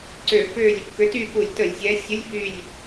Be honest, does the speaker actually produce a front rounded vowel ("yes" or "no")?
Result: yes